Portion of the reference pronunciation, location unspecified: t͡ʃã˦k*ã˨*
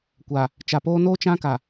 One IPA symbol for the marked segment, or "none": a˨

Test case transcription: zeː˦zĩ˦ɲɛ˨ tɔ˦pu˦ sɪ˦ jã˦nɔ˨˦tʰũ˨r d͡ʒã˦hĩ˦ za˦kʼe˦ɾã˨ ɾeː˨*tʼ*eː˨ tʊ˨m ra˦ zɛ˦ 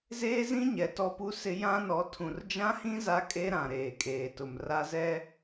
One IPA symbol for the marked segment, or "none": kʼ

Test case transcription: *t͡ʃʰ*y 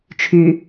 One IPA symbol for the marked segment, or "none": t͡ʃʰ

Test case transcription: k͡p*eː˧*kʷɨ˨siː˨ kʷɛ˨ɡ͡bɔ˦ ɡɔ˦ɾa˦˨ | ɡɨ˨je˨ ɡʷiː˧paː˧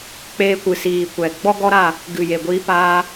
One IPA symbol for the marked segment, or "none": eː˧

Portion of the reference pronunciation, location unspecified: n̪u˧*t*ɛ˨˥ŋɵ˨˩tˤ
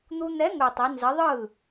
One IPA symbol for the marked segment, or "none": n̪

